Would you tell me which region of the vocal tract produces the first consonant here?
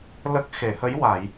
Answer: tongue tip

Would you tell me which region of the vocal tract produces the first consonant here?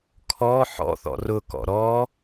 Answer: velum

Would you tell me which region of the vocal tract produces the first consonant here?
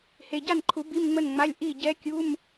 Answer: throat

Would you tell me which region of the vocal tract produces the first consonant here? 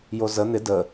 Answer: palate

